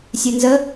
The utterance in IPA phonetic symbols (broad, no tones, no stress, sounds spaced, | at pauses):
sʲ e n z ə